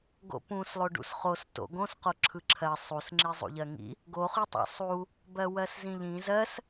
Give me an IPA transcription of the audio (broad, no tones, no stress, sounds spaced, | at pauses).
ɡ o̰ p ũ s lˠ o ɖ ṵ s χ o s t o̰ ɡ õ s q o ǁʰ ɯ ǁʰ ɜ sˤ u s ŋ͡ǁ i zˤ ṵ ʎ ɜ ŋ ḭ | ɡ o χ y tˤ o̰ sˤ u | b ɜ w ɜ s z ĩ ʎ ĩ z ɜ s